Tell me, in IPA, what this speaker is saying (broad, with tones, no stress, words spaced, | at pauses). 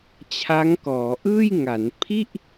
t͡ɕʰa˦˥ŋkɔː˩˦ ʔɯː˥˩jŋa˩˦n pʰi˥˩ʔ